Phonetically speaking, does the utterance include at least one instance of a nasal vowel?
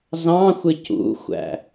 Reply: yes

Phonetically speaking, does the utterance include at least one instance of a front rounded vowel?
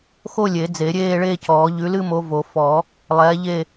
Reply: no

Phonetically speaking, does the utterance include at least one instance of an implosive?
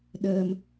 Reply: yes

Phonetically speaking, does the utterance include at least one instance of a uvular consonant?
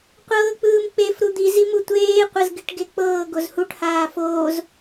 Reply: yes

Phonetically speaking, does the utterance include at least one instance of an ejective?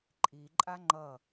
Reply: yes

